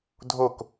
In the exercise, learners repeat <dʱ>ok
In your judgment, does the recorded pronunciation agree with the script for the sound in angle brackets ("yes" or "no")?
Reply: yes